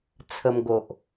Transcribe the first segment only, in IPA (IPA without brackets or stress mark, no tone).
t͡sʰ